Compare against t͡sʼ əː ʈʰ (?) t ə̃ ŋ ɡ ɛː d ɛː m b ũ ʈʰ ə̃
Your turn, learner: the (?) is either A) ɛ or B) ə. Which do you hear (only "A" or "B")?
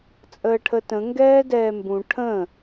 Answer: B